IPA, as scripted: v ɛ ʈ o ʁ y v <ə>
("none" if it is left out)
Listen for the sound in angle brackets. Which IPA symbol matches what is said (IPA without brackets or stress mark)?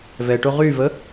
ə